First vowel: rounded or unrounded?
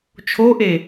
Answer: rounded